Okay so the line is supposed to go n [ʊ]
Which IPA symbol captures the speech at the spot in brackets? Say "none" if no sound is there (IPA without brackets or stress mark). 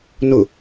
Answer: ʊ